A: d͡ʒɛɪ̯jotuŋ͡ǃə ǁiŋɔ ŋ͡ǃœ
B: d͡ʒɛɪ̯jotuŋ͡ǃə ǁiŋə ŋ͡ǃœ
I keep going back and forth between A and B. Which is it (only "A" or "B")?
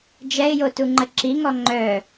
A